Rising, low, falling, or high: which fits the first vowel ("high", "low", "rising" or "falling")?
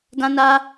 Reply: high